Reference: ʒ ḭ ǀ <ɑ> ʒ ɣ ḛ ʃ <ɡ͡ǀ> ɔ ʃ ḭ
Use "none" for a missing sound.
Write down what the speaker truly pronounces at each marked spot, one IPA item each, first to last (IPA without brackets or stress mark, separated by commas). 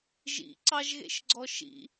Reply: ɑ, ɡ͡ǀ